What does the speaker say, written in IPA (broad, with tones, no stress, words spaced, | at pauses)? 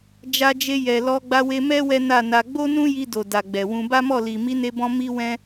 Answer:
d͡ʒa˧d͡ʒe˧ jɛ˨lɔ˧ ɡ͡ba˧we˧mɛ˦ wɛ˦na˦˨na˧ ɡ͡bo˦nũ˦ji˧ do˨ da˨ɡ͡bɛ˨wũ˧ ba˦mɔ˦˨li˨ mi˨˦ne˧bɔ̃˧ mi˦ wɛ̃˦